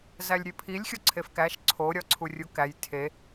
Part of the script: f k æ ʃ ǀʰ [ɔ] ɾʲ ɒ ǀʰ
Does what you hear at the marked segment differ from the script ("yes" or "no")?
yes